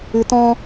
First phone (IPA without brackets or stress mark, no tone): ɨ